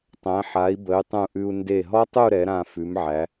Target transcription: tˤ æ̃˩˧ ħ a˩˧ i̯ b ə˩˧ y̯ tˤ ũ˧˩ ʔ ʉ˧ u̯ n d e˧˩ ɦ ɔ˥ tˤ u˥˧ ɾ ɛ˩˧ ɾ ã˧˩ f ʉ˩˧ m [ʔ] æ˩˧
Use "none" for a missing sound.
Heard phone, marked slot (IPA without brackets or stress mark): ʕ